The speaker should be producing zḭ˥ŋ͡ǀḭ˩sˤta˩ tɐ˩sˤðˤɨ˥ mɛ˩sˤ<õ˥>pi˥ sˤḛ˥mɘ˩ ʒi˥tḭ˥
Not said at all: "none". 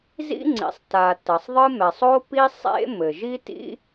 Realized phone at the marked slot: o˥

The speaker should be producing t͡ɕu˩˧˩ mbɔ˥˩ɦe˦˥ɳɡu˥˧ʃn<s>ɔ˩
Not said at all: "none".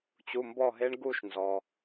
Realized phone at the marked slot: z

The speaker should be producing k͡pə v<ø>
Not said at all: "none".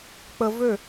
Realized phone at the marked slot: ø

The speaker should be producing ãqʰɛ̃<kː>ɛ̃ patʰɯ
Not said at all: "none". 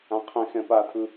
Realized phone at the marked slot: x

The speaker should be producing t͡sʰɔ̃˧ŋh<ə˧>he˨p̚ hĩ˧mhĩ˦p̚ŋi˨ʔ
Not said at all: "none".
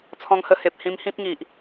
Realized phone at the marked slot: ə˧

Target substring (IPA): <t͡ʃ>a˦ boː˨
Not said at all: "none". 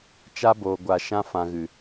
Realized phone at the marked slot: t͡ʃ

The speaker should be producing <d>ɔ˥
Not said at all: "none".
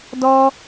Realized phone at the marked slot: d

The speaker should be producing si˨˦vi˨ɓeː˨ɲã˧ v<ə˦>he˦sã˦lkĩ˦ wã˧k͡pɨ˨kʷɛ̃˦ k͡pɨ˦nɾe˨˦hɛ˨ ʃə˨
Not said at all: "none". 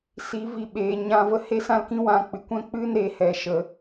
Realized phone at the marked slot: ə˦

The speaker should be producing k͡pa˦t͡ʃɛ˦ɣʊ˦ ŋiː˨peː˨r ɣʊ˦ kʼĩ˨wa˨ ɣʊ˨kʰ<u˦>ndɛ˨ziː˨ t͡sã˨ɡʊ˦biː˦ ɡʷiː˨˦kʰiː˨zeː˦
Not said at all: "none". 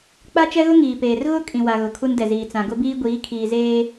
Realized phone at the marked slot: u˦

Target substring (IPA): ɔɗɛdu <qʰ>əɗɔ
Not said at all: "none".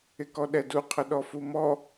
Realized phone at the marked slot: qʰ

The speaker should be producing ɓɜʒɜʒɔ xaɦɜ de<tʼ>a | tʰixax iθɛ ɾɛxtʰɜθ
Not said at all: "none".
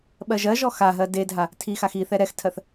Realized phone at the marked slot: dʱ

